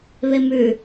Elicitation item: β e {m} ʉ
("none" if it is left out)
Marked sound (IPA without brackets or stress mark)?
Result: m